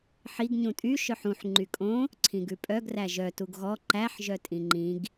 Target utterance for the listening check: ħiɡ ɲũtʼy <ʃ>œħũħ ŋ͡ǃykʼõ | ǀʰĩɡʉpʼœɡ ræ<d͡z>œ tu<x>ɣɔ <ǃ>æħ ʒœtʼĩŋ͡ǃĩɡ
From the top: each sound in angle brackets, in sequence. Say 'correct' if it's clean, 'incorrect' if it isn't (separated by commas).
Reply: correct, incorrect, incorrect, correct